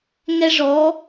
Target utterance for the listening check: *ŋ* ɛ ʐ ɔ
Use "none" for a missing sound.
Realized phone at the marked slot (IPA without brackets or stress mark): ŋ